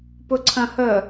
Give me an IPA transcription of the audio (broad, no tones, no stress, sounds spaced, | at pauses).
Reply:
p ʊ ǀʰ ɐ̃ h ə